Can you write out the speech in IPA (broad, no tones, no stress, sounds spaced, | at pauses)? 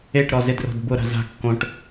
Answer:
e ʈ ɾ ɔ z ɪ d r o̤ d b ʊ ɾ a̤ z a̤ kː õ ʈ